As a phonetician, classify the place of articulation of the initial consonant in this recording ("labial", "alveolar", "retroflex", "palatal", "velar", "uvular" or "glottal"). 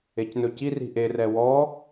palatal